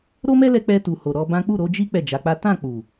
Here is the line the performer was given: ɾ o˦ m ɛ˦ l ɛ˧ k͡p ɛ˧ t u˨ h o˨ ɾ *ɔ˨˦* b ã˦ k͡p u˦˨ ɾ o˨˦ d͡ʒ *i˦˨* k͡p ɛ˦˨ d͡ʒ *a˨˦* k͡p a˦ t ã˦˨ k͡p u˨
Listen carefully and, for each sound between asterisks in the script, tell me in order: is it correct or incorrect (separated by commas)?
correct, incorrect, correct